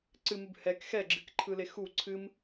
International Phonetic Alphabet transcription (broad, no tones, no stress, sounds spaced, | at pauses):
ǀ ɨ m ɨ b h ɛ k x ɛ ɡ͡ǁ ɨ k ǃʰ ɯ l e x u ǀʰ ɨ m